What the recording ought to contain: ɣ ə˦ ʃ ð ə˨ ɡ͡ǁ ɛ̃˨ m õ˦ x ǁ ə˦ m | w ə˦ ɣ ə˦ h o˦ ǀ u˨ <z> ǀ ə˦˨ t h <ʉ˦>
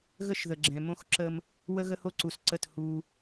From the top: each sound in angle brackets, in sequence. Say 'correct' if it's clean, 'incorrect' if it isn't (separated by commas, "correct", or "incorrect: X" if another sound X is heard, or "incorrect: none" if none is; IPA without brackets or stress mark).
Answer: incorrect: s, incorrect: u˦